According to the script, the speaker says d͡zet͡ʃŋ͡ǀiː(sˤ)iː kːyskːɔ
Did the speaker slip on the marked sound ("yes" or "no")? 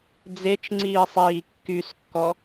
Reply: no